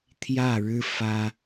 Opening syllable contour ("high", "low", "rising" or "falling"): falling